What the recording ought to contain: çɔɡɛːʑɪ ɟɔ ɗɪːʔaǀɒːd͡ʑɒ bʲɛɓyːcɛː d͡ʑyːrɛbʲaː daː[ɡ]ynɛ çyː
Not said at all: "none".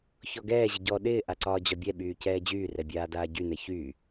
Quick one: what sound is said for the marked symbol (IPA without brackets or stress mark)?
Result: ɟ